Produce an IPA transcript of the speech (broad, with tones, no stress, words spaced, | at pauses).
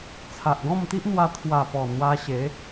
t͡sʰa˨ʔɡɔ̃˥˧mt̪i˦ʔn̪wa˧ t̪ʰwa˨˩pɔ˨˩ n̪wa˧ɕe˨˦